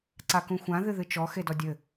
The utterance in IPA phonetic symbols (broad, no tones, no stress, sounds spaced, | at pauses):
ǀ a k ũ xʷ ã ð ɨ ð ɨ t͡ʃ ɔ x e d ɔ dʲ ɘ